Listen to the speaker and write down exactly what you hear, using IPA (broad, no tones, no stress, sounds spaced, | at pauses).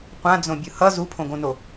qʷ ã d͡z õ bʲ ɯ h ʌ z u pʰ õ ɡ õ n o